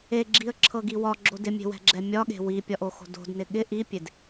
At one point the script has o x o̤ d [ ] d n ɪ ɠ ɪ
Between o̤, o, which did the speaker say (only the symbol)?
o̤